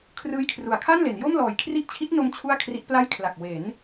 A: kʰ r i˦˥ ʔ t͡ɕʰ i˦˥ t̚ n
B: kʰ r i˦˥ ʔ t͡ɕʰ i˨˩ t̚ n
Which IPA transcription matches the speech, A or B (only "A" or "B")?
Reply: A